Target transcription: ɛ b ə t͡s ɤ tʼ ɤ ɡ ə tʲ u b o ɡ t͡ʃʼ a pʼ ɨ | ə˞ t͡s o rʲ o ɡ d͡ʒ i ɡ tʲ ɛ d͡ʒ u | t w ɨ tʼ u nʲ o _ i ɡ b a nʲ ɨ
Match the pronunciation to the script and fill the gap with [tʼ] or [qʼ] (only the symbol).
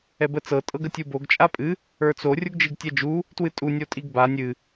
tʼ